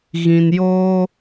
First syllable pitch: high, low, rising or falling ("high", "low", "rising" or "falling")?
low